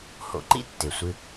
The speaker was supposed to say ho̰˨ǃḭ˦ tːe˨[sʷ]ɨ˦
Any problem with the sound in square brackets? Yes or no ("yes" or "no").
no